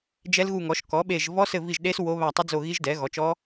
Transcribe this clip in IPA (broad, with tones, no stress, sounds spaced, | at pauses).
d͡ʒ ɛ˦˥ l ɣ u˦˨ ŋ ɔ˩˥ ʃ k ɔ˩˥ ɓ e˦˨ ʒ v ɔ˦˥ s ɘ˦˨ v i˦˨ ʒ ɗ e˦˥ s w o˦˥ β a˦˨ tˤ ɘ˦˥ d͡z o˦˨ ɣ i˦˥ ʒ d ɛ˩˥ ɣ ɔ˩˥ t͡ʃ ɔ˦˥